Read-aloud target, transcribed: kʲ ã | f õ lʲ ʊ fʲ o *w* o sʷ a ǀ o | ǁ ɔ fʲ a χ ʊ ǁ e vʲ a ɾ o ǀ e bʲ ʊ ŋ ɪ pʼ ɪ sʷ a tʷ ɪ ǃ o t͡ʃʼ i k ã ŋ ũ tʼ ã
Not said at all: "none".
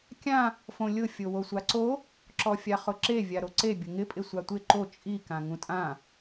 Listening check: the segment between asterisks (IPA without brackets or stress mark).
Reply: w